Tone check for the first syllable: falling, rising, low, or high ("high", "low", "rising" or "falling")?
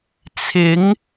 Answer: rising